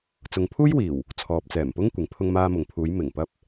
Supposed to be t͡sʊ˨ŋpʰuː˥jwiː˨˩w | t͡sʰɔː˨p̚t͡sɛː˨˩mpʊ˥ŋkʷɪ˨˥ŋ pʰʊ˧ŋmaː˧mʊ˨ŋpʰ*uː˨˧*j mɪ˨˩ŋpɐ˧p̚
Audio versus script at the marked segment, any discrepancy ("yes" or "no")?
no